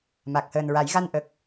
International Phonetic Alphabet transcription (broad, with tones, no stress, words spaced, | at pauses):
ma˨˩k̚həː˨˩nɹa˨˩˦jɣa˧n ʔə˨˩k̚